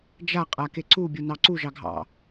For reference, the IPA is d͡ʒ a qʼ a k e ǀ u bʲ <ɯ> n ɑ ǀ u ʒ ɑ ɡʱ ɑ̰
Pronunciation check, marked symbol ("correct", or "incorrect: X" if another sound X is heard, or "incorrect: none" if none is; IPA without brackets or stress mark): incorrect: u